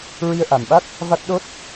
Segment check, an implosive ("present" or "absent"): present